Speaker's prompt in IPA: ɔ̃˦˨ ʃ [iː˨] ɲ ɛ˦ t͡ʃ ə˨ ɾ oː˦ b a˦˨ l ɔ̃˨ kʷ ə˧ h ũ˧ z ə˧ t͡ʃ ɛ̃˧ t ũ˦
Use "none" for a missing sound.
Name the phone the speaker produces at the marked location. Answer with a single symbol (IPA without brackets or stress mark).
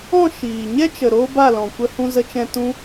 iː˨